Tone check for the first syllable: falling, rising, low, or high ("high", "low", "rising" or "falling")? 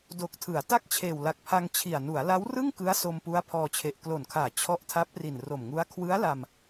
low